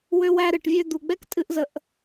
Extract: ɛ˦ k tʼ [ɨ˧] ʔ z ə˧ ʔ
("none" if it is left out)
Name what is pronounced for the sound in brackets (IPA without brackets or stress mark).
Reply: ɨ˧